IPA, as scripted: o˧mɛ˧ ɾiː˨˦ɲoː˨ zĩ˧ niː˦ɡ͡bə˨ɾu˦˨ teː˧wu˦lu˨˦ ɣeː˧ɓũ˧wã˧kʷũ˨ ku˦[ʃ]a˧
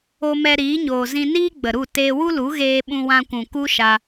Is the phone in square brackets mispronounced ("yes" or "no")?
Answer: no